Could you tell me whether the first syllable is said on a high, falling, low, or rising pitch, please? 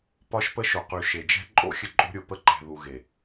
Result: high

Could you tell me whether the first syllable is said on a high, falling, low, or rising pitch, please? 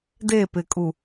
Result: falling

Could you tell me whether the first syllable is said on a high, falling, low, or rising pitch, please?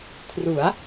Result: rising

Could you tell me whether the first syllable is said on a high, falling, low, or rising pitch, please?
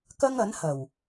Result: high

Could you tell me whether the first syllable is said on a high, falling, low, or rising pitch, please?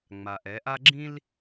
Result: low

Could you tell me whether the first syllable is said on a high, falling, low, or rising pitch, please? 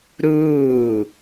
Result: falling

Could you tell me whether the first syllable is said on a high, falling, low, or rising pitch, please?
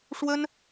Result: high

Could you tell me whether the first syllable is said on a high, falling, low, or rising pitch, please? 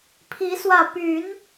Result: rising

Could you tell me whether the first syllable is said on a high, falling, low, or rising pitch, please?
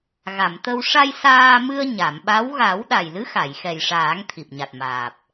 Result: low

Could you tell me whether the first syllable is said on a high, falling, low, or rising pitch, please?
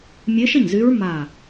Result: rising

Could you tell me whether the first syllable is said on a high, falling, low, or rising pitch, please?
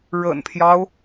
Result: low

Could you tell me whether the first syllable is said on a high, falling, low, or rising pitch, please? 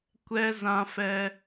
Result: high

